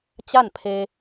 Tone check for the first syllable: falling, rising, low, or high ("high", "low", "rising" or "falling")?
falling